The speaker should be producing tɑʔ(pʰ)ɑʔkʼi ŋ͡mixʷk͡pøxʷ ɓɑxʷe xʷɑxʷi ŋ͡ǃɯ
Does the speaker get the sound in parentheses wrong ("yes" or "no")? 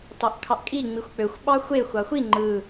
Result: yes